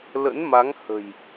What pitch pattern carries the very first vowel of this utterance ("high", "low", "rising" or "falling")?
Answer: rising